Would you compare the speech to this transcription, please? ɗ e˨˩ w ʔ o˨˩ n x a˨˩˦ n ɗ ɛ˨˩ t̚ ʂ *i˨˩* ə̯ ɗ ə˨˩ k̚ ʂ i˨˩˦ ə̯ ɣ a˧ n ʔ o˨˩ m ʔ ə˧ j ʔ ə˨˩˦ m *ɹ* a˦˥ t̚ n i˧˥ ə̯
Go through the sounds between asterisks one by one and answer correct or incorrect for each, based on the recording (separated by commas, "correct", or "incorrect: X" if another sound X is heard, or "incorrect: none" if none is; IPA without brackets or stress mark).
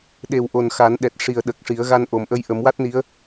correct, incorrect: w